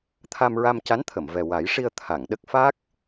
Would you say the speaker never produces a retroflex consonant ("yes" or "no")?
no